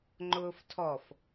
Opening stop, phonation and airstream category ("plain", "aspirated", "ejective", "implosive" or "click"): click